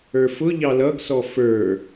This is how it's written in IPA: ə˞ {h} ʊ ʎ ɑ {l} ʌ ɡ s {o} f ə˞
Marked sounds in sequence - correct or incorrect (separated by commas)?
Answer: incorrect, correct, incorrect